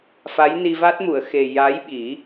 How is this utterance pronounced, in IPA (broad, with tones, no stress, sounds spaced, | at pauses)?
f a˧˥ j n i˧ v a˦˥ t̚ m u˨˩˨ ə̯ x e˨˩ j a˧˥ j ɓ i˨˩˦